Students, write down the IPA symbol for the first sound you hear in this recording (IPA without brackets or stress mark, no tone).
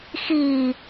x